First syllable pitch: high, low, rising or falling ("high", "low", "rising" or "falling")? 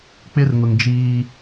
high